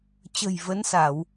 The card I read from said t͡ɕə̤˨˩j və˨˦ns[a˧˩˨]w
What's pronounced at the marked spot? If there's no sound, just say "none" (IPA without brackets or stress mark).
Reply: a˧˩˨